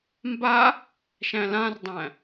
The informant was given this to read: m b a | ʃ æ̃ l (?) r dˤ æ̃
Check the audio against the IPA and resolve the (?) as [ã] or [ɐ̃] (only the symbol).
ã